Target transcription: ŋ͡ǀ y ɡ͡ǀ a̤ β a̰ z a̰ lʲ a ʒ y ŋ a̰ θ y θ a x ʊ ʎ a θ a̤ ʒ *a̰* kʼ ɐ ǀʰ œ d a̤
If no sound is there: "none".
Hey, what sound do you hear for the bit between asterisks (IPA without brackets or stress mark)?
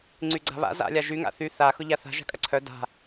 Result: a̤